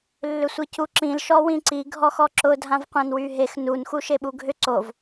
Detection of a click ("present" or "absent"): present